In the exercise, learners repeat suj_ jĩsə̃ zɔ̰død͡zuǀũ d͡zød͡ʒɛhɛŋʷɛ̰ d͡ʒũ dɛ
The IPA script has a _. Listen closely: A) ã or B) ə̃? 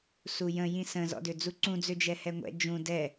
B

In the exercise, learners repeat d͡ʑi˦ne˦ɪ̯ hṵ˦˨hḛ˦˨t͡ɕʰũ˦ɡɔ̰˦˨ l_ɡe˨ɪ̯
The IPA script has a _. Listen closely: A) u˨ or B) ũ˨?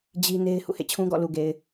A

